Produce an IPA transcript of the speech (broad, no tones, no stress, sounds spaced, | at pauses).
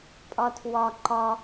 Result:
pʼ ɒ tʰ w ɒ ǃ ɒ